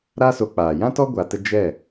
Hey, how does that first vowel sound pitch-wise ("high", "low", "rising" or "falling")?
high